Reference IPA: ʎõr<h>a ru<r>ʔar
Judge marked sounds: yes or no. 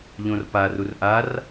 no, yes

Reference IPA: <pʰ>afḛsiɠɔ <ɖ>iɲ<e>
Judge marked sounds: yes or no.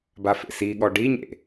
no, yes, no

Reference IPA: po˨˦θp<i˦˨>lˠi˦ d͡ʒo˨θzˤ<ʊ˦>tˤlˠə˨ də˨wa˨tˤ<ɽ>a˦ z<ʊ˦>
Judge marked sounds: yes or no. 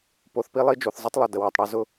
no, no, yes, yes

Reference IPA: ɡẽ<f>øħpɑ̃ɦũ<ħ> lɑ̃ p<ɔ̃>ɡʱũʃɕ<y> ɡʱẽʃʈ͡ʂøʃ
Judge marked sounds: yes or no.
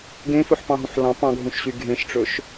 yes, yes, no, yes

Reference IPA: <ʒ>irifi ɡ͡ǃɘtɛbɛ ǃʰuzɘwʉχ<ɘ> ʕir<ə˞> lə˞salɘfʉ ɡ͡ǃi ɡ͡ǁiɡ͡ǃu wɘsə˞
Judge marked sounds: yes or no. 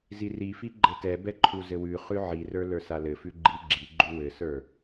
no, no, yes

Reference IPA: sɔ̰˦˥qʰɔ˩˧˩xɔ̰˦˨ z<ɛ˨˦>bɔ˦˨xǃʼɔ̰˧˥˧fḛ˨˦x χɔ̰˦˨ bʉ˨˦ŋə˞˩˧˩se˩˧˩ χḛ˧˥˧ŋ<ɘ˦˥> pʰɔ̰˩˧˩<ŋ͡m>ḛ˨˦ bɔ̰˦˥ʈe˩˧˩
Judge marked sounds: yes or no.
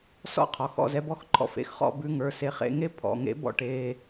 yes, no, no

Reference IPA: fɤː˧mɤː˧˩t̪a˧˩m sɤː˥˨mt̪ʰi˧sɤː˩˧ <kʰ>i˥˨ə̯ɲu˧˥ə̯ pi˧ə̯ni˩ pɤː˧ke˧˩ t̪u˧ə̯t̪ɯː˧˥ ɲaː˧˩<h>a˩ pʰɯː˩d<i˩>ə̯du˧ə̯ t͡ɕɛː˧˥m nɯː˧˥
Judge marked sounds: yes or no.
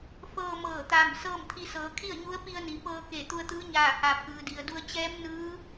yes, yes, yes

